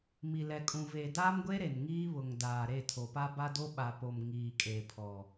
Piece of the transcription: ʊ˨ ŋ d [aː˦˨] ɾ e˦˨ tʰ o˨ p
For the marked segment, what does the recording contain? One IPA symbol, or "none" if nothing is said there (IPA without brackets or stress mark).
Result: aː˨